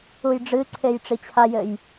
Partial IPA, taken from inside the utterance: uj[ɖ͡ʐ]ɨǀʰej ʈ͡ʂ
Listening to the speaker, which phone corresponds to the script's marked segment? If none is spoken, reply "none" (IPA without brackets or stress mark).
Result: ɖ͡ʐ